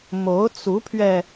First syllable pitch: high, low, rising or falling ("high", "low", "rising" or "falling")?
rising